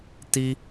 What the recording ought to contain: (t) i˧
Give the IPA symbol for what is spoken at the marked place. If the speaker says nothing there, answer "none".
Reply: t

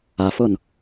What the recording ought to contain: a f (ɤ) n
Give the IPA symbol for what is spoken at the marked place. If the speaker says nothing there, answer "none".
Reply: ɤ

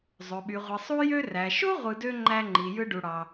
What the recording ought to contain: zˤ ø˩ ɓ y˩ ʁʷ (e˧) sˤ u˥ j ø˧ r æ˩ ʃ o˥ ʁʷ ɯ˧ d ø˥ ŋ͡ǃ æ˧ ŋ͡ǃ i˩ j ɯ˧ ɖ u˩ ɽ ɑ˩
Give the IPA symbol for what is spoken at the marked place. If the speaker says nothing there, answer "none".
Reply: e˩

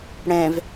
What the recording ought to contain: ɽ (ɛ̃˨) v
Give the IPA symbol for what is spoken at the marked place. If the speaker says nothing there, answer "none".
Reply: ɛ̃˨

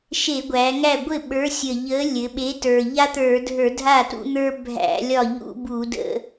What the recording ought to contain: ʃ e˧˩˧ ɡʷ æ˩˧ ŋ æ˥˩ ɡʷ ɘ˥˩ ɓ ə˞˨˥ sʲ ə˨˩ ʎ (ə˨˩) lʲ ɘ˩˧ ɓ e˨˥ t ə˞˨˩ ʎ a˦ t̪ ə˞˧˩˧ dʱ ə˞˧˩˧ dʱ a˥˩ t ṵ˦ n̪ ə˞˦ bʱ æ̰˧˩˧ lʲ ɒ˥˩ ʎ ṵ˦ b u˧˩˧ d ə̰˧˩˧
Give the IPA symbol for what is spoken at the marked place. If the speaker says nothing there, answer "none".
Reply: ə˨˥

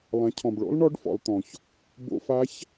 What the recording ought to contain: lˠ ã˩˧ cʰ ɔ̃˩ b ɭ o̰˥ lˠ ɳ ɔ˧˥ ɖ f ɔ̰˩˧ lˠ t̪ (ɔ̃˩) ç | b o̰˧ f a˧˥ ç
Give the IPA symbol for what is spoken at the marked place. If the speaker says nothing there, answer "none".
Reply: ɔ̃˩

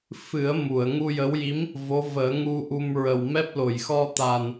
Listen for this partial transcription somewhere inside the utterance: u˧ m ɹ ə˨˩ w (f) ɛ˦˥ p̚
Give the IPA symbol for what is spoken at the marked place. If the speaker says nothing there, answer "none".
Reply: m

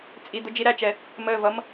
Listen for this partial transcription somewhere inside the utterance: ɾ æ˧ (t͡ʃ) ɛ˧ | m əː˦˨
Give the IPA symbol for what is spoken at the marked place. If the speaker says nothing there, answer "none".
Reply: t͡ʃ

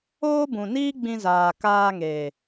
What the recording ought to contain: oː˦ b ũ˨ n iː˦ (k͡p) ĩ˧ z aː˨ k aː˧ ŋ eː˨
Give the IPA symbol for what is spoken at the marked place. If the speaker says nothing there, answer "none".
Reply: ɡ͡b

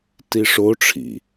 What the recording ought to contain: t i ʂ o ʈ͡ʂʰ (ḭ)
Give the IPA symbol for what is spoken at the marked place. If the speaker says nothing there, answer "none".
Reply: ḭ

